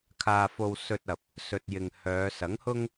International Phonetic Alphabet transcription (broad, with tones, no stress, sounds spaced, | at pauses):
kʰ aː˧ f o˧ w s ɵ˧ t̚ ɐ˨ p̚ | s ɵ˨ t̚ j ɪ˨ ŋ h œː˨˧ s ɐ˨˥ ŋ h ʊ˥ ŋ